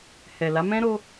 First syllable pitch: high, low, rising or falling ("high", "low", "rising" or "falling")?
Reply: low